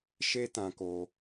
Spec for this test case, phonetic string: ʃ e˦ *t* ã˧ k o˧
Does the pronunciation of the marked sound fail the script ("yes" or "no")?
no